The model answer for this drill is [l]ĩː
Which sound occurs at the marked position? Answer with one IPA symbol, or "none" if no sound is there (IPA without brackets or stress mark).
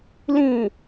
l